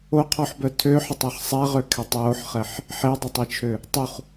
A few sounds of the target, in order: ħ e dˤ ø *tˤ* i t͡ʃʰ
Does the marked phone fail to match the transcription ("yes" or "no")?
no